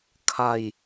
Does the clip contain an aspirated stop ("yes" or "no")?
yes